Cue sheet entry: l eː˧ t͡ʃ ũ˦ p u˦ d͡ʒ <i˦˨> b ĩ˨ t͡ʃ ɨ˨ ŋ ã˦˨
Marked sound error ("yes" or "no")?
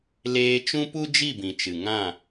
no